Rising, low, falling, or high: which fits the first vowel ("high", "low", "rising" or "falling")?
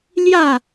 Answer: falling